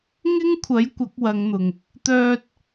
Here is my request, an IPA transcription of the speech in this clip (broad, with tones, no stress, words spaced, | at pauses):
ŋɪ˥ŋkʷʰɐ˨˥j kʷɐ˨˥k̚wɐ˨˧ŋn̪ʊ˨ŋ | t̪œː˧t̚